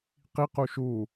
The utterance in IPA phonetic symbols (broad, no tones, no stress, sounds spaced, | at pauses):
q i q u ʃ u